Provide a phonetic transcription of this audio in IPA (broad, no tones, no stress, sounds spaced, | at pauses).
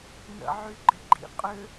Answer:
n ə̰ ʕ y ɡ͡ǃ ɪ ɡ͡ǃ ḭ qʼ ʏ